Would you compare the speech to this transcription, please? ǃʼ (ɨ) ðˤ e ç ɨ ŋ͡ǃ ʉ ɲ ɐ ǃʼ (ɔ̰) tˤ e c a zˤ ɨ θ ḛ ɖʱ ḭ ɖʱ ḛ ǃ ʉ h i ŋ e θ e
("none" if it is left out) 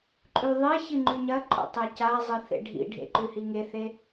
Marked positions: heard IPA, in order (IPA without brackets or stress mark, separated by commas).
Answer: ʉ, o̰